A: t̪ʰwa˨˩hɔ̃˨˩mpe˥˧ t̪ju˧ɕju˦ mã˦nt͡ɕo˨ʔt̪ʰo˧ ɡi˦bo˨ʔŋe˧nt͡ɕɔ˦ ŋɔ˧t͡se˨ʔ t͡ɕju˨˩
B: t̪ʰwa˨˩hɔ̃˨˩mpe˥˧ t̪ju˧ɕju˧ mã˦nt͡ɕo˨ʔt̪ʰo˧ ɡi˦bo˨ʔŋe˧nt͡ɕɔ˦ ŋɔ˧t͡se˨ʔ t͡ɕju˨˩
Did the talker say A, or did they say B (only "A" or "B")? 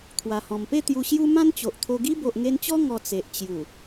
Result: A